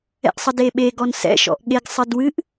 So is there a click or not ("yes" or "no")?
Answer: no